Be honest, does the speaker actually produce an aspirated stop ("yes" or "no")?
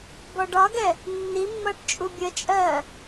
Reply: no